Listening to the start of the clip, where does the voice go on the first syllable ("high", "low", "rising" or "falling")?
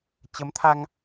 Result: rising